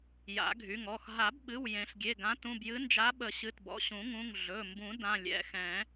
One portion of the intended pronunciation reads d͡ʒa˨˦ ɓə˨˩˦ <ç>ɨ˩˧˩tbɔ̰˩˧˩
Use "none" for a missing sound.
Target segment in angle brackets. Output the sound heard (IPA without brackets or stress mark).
ɕ